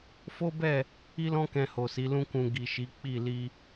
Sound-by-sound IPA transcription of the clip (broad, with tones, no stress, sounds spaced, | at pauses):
f o˦ b ɛ˦˨ | i˦ l ɔ̃˦ k ɛ̃˧ h o˨ s i˨˦ l ũ˦ k ũ˧ ɡ i˨ ʃ i˨˦ k͡p i˦˨ l i˧